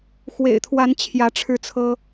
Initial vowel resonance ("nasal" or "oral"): oral